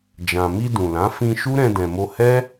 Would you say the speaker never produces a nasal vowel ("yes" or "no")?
no